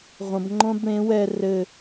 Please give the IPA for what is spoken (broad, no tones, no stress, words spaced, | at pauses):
ʁʷɐ̃b ŋ͡ǃõbɽẽ wɛ rɘ